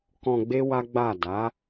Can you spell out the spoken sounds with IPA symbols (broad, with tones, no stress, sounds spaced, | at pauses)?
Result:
k ɔ̃˧ ɡ͡b e˦ w a˦ ɡ͡b a˦˨ d a˨˦